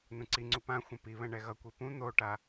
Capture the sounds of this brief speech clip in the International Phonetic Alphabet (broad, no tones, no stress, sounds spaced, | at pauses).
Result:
n ũ ǀ i ŋ͡ǀ u p ã xʷ ɛ̃ p i β ɛ̃ ɳ ɛ ɣ ʌ kʷ i p ũ n̪ o ʈ a